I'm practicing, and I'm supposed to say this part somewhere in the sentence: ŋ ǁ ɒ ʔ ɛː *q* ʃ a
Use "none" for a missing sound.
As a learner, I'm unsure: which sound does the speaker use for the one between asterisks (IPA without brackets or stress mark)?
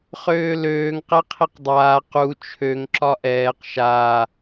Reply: q